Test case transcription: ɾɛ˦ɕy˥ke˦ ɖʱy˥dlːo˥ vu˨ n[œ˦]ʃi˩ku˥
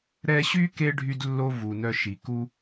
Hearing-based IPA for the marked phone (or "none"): œ˦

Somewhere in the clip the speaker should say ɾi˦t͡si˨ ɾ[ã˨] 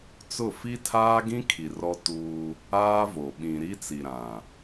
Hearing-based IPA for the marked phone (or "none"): ã˨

